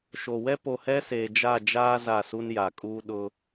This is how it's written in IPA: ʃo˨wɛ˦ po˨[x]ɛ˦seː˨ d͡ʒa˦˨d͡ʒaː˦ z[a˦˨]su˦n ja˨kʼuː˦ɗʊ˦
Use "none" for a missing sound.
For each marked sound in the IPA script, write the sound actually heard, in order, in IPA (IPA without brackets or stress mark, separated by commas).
h, a˦˨